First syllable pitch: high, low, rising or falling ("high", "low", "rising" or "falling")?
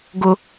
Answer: high